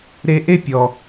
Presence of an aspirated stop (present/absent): absent